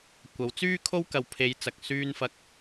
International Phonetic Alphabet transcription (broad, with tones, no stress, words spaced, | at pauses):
kʷɐ˨˥w t͡syː˥kʰo˥w kɐ˨˧w pʰe˨˧jt͡sɐ˨k̚ syː˧nfɐ˧k̚